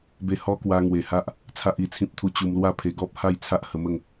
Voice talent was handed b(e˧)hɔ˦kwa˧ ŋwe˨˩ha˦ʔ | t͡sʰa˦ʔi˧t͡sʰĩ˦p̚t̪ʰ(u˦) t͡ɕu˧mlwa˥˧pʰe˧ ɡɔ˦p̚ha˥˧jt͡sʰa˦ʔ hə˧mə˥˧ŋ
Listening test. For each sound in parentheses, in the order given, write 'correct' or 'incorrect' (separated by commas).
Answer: correct, correct